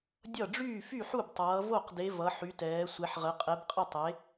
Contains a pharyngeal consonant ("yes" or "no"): yes